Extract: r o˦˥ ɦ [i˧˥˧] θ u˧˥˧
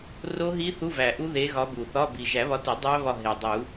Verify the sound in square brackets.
incorrect: i˦˥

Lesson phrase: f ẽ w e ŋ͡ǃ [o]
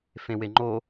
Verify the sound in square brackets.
correct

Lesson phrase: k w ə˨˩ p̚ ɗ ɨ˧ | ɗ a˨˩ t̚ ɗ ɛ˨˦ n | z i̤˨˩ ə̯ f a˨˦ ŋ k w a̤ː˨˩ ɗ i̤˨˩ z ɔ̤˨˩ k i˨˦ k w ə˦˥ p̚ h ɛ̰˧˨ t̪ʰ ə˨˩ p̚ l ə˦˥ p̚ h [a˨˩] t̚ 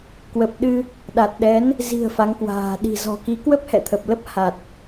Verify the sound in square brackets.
correct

